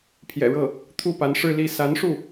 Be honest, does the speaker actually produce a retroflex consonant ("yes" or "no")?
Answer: yes